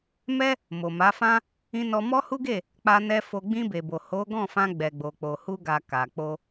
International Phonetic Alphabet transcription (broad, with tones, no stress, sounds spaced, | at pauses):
m ɛ˦ | m o˨ m a˨˦ f ã˦ | ĩ˧ n ɔ˧ m ɔ˦ h u˦ ɡ e˦˨ | k͡p a˧ n ɛ˧ f o˧ ɡ͡b ĩ˧ b e˨ b o˨ h o˨˦ ɡ ɔ̃˦˨ f ã˧ ɡ͡b ɛ˨ ɡ͡b o˨ k͡p o˨ h u˧ ɡ a˨ k a˨ k͡p o˧